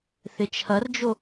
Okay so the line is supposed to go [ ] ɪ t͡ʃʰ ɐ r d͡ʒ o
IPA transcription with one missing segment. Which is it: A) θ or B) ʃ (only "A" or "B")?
A